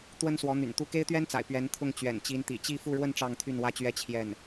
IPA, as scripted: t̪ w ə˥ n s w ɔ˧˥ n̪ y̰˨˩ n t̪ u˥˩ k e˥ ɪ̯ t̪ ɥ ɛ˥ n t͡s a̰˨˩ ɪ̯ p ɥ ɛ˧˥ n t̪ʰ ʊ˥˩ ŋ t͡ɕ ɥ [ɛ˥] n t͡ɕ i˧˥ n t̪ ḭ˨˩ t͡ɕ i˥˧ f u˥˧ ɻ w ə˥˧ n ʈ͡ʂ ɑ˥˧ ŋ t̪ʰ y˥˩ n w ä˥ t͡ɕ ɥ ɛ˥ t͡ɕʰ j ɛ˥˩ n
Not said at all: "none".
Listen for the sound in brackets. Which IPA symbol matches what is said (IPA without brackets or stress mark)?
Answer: ɛ̰˨˩